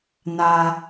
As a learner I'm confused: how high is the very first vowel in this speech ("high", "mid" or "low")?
low